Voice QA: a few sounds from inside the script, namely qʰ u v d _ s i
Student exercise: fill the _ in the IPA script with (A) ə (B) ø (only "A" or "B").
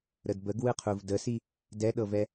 A